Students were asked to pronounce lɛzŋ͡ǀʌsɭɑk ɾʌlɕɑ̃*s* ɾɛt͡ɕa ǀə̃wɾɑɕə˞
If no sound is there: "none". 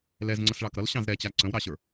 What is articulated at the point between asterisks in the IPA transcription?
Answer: z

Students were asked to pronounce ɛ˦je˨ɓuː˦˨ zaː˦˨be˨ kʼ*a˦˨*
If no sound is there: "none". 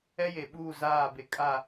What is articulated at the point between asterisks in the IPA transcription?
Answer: a˦˨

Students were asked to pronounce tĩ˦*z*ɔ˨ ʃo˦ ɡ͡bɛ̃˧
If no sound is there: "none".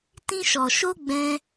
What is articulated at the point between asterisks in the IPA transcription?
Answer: ʃ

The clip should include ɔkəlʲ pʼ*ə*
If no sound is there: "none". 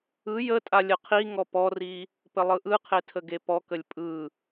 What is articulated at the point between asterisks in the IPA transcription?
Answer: ɯ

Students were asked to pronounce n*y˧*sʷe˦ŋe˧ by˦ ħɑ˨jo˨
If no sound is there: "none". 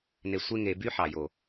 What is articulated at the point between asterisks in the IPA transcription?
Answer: e˧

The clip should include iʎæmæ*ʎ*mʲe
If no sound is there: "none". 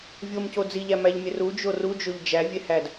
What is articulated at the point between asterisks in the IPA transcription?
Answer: ʎ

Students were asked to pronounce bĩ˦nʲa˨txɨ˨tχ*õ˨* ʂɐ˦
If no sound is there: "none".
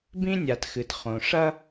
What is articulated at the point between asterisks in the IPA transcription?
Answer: õ˨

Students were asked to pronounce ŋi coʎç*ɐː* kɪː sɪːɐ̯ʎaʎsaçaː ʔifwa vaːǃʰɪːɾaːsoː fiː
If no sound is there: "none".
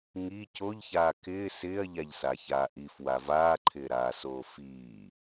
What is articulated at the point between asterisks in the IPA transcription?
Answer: aː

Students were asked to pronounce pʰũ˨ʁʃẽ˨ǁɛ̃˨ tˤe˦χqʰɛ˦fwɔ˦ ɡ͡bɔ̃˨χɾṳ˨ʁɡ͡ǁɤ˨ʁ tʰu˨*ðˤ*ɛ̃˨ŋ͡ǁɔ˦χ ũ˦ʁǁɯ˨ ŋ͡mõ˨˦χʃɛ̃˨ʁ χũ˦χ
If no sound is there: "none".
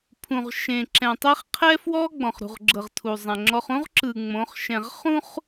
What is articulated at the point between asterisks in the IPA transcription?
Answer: zˤ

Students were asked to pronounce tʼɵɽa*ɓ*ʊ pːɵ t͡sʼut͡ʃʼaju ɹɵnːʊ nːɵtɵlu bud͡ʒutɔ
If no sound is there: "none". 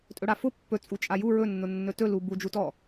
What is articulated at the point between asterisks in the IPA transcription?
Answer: f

